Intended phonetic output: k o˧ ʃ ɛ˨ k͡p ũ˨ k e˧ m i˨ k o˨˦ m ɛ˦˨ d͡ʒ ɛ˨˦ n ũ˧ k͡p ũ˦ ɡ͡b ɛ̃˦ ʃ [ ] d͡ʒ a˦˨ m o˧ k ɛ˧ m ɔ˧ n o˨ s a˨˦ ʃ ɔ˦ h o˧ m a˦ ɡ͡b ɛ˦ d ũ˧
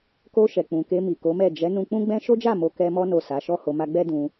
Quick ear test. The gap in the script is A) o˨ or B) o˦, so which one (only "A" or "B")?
B